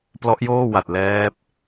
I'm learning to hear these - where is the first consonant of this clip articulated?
lips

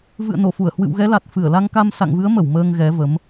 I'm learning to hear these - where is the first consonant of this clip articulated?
lips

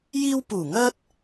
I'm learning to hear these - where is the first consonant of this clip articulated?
palate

